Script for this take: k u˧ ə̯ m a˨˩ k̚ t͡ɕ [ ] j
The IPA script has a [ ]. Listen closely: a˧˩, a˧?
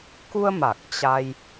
a˧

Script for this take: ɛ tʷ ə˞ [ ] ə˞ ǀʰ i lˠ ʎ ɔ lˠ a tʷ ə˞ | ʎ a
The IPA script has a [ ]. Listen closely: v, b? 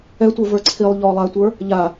v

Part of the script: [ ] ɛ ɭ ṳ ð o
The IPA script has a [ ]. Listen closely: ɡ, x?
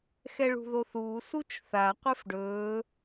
x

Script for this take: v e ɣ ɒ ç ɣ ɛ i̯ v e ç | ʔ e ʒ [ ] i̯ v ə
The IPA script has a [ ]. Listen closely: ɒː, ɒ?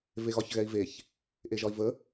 ɒ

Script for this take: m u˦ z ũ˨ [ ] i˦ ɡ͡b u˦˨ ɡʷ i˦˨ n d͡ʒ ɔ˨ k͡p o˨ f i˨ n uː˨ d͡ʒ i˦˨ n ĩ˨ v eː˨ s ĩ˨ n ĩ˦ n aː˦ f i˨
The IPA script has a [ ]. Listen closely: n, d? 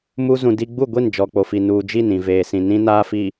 d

